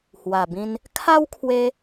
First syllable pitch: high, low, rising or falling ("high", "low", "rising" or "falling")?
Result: low